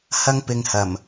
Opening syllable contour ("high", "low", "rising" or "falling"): high